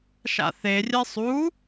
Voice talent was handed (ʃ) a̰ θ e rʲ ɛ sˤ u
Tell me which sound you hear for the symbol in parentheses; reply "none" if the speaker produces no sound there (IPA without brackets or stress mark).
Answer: ʃ